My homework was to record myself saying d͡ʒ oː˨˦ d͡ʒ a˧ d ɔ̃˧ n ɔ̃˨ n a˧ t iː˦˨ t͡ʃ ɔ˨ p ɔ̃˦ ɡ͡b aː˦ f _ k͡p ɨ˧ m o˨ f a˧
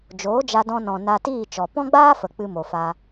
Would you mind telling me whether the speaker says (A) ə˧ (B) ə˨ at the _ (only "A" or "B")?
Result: B